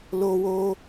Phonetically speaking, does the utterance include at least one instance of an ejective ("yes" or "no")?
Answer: no